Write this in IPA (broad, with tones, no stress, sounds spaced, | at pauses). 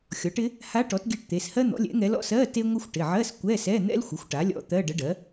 xʲ ɔ˩˥ ʈ ɪ˧˥ | h a˧˥ ʈ ɔ˩˥ t ɡʲ ɛ˧˥ ʈ t̪ e˩˧˩ s h ɜ˥ n̪ ɔ̰˩˥ lʲ ɛ̰˩˥ ŋ ɛ˧˥ l ɔ̰˧˥˧ s ɜ˧˥˧ t e˥ ŋʷ ə˥ xʷ ʈ ɪ˩˧˩ ʕ ɜ˧˥˧ s kʷ ɛ˧˥˧ s ɛ˧˥˧ n̪ ɛ̰˥ l xʷ ɪ˩˥ xʷ ʈ a˩˥ lʲ ɔ̰˧˥ t̪ ɜ˧˥˧ ɖ ə˧˥ ɖ ɜ˩˥